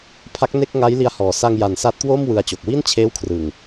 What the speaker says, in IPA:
pʰa˦˥k̚ne˥˩k̚ŋa˦˥jli˧a̯ hɔː˨˩sa˧ŋja˨˩n sa˦˥t̚kwoː˥˩m wɯ˧a̯t͡ɕo˨˩k̚ wi˥˩nt͡ɕʰeː˦˥wkʰrɯ˨˩ŋ

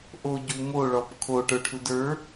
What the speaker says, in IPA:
ʔoɟu moɭɔp kʰoʈə˞ʈʰud ə˞

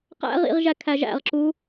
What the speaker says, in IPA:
qæ̰ʁḭʁ ʒækʰæʒæ̰ʁǁu

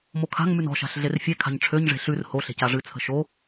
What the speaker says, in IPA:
mokʰa̤ŋmʉn ɔ̤ʃa̤ɬ ɮerfʲekʰa̤ɲ ʈ͡ʂʰøɲʐe̤ ɬʉr hoɬe̤c aʐɨt͡sʰə̤ ʃo

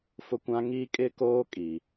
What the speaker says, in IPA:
fʊ˦kʷã˦ ŋiː˦ kʼɪ˦ koː˦kʼi˨

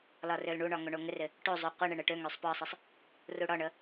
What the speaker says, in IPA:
lɒrølɳuɳɒ ŋoɳoŋɪrɪ | ʈozˤu qʷɘɳɪɳ ɘʈøŋøsˤ pɒsˤɪsˤ | ruɽɒɳə

